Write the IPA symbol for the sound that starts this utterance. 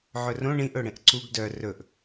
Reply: ʕ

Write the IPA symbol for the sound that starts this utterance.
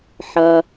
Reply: ħ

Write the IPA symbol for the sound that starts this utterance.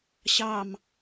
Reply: ɕ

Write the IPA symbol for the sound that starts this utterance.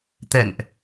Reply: t̪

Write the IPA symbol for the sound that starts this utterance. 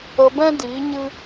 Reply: ə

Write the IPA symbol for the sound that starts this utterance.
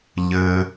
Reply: ʎ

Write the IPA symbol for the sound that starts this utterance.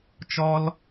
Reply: t͡ʃ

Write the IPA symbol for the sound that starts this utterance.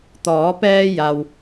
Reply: t̪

